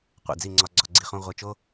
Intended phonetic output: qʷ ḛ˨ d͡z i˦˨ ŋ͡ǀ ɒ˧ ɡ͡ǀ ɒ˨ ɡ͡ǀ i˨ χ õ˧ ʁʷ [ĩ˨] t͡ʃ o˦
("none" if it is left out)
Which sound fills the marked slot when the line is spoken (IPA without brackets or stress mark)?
i˨